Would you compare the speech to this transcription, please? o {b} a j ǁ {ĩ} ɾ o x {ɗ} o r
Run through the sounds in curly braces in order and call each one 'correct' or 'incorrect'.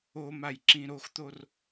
incorrect: m, correct, incorrect: t̪

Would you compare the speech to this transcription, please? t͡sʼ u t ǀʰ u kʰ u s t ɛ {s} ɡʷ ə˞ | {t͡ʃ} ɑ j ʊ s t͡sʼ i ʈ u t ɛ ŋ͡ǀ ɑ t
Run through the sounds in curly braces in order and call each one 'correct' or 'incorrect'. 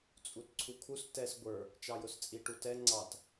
correct, correct

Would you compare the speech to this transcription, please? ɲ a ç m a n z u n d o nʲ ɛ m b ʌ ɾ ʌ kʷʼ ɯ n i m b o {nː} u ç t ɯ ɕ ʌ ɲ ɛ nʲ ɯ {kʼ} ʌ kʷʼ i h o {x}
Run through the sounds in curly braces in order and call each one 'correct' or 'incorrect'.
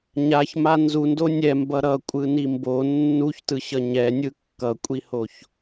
correct, incorrect: kː, incorrect: ç

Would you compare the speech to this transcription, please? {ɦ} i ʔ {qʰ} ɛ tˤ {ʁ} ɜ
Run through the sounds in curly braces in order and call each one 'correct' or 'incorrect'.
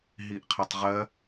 correct, correct, correct

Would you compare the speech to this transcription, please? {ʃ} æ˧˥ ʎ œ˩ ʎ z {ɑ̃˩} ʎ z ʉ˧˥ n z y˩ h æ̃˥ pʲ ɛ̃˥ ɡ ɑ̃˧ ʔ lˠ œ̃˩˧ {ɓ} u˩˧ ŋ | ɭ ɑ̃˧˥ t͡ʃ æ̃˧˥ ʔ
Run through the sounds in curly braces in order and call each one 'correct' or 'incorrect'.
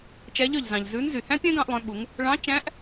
incorrect: t͡ʃ, correct, correct

